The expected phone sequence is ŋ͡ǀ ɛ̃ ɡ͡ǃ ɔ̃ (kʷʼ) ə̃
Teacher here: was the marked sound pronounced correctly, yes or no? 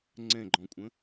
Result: yes